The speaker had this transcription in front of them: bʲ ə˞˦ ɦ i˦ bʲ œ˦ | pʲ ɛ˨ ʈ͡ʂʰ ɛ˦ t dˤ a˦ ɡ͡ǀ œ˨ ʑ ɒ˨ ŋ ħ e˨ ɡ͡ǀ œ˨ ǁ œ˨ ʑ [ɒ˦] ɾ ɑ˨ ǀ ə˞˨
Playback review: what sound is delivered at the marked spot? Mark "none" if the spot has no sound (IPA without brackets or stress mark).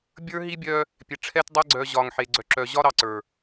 ɒ˦